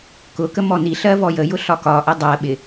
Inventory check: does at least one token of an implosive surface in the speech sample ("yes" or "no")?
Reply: yes